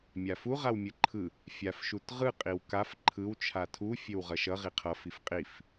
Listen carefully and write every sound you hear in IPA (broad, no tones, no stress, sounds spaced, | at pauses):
mʲ a f u ʁ a w mʲ ɯ ǃʰ ɯ | fʲ a f ʃ u t ʁ ɯ qʼ i w k a f ǃʰ ɯ w t͡ʃʰ a tʰ u fʲ e w ʁ ʌ ʃ ʌ ʁ i qʰ ʌ f i f qʼ i f